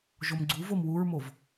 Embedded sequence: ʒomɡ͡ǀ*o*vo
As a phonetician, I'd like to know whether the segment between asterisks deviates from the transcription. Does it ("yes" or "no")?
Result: yes